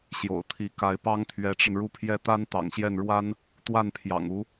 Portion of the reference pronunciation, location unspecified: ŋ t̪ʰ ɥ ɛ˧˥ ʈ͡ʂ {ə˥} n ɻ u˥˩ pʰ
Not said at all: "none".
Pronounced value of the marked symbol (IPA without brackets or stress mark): ə˧